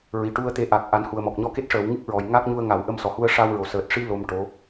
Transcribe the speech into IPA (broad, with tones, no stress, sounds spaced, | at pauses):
ɹ i˨˩ ʈ u˧ ə̯ t̪ e˧˥ ʔ a˨˩ k̚ ʔ a˨˩˦ n h u˨˩ ə̯ m ɔ˨˩ k̚ ɲ ɔ˧ k e˦˥ t̚ ʂ əː˨˩˦ w ŋ ɨ˦˥ k̚ ɹ ɔ˨˩ j ŋ a˦˥ k̚ ɲ u˧ ə̯ ŋ a˨˩˦ w ʔ ə˧ m s ɔ˨˩ h u˧ ə̯ ʂ a˧ w ɹ o˨˩ s əː˨˩ t̚ ʂ i˧ l o˧ m ʈ o˧˥